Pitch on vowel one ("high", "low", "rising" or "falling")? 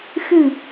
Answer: low